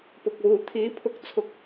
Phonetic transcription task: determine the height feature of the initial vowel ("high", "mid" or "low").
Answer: high